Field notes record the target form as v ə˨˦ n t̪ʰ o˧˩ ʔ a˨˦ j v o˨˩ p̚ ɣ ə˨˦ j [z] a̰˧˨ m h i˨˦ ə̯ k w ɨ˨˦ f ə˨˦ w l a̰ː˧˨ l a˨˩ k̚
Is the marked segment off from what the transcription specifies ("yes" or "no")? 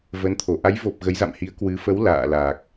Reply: no